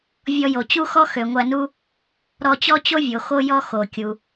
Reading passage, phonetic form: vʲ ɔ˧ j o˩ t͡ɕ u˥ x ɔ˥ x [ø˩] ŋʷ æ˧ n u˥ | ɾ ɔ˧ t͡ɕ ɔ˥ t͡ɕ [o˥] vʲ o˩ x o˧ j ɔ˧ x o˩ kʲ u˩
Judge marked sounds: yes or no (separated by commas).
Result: yes, yes